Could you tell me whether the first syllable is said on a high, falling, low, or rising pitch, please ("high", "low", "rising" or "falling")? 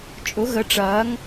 rising